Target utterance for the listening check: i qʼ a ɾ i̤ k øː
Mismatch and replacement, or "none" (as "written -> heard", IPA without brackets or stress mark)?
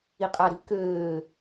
none